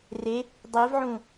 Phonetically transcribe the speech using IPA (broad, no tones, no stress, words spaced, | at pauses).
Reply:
re | dˤivʕũ